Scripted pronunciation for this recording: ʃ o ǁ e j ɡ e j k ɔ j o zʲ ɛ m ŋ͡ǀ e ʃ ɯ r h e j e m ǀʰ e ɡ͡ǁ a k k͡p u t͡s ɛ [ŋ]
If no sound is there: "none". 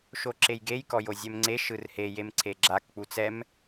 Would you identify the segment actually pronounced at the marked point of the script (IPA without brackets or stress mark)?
m